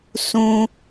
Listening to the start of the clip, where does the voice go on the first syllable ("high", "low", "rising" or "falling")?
low